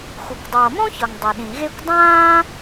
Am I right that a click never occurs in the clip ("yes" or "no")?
yes